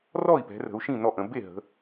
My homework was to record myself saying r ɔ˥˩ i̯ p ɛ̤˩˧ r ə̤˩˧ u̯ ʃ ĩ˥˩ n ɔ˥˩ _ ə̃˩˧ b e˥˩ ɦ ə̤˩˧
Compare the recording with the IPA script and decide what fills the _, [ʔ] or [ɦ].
ʔ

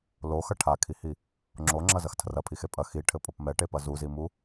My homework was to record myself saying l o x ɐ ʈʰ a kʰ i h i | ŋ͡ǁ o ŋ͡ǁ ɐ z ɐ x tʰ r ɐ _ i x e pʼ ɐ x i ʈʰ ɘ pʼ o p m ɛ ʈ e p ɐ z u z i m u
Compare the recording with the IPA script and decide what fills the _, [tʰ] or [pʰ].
pʰ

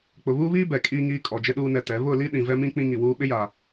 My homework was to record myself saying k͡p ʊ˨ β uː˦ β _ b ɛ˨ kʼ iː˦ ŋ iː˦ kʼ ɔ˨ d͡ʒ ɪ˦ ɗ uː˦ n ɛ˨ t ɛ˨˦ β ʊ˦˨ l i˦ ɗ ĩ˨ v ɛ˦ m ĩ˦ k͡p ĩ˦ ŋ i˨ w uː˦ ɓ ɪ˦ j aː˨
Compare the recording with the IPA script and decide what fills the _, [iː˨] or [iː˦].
iː˦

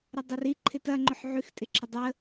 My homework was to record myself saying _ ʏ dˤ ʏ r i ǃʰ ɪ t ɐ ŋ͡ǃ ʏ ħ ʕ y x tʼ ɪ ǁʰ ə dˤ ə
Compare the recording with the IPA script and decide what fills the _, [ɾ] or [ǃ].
ɾ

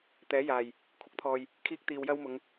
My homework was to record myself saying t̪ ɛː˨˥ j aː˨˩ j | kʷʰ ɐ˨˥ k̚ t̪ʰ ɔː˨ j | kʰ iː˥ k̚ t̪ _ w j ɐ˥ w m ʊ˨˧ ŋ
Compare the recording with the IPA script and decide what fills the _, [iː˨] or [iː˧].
iː˧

